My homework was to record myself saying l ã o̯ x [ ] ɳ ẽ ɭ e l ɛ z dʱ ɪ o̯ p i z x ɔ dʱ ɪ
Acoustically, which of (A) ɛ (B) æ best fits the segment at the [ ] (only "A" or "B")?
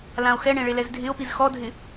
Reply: A